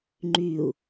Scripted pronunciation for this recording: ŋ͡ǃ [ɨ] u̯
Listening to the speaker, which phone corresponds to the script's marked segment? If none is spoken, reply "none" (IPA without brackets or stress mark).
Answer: y